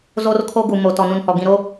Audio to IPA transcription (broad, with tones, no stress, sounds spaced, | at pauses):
z o˦ r kʰ o˦ ɡ u˨ m o˨ t ɔ˨ n ũ˨ n h ɔ˨ ɡ ĩ˨ ɾ o˦